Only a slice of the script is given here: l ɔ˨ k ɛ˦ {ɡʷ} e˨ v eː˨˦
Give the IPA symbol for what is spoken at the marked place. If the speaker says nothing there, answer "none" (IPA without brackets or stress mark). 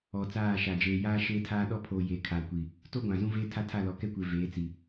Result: kʷ